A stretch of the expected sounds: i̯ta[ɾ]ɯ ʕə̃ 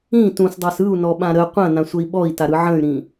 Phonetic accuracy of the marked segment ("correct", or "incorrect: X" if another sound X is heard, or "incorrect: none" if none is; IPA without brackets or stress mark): correct